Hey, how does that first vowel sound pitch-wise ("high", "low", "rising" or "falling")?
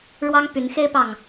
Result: high